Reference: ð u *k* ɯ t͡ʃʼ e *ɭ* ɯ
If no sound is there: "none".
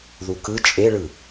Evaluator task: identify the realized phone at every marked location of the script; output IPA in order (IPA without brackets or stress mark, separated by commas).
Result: k, ɭ